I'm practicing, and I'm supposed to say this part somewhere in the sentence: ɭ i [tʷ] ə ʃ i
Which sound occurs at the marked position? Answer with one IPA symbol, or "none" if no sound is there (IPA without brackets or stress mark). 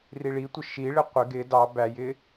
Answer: tʷ